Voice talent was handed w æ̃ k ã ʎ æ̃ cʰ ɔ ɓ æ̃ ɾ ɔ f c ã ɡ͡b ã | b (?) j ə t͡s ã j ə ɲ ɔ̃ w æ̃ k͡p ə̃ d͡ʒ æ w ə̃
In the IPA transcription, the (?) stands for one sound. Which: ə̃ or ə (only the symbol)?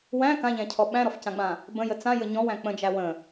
ə̃